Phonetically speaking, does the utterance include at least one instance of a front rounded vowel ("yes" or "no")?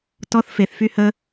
yes